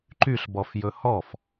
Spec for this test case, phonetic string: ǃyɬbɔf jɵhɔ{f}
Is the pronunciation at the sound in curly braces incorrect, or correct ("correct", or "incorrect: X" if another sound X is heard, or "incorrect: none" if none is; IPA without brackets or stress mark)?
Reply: correct